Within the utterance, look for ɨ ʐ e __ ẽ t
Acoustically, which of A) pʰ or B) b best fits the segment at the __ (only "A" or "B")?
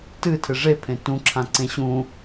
A